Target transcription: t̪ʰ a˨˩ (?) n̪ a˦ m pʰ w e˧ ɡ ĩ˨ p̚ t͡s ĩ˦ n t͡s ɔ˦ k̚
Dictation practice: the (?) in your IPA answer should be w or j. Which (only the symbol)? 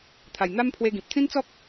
j